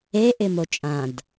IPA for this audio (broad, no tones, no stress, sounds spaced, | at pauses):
e ʔ ɪ m o t͡ʃʼ ã d